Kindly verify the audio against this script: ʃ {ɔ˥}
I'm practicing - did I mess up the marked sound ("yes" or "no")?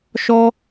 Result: no